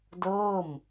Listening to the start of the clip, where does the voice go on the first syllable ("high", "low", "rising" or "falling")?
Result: falling